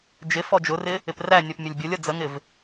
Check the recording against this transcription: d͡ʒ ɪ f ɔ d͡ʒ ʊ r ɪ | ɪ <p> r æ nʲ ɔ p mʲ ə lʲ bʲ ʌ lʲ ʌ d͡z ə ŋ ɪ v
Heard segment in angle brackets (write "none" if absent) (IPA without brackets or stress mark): p